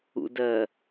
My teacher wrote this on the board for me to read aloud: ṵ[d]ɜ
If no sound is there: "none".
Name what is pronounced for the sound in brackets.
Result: d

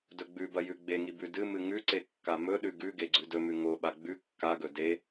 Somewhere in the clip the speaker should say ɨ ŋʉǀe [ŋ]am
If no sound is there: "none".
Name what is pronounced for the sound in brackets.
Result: kː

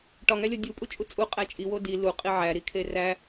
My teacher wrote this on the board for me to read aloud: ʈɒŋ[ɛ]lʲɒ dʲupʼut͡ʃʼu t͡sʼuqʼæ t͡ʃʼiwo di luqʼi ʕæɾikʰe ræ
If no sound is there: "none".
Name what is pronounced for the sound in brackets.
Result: æ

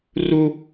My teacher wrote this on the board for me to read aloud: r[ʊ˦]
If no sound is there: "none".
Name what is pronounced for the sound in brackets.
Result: u˦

